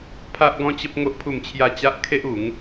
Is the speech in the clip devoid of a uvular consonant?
yes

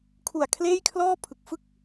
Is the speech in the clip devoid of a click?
yes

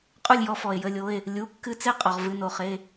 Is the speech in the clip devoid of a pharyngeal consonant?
yes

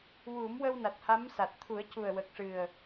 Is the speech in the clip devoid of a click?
yes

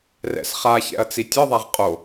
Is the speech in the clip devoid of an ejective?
no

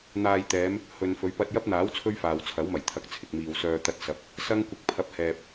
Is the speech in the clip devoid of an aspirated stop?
no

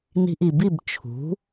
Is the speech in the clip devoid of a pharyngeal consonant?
yes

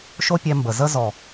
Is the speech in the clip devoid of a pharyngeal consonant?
yes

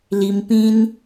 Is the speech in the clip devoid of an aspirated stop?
yes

